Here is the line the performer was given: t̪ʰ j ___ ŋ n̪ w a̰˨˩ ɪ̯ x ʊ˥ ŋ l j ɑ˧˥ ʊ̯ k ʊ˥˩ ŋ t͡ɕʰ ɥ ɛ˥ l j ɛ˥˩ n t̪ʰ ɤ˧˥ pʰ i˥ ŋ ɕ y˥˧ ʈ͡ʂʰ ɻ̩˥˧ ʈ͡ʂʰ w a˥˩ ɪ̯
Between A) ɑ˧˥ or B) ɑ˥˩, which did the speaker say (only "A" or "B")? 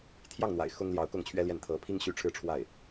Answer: B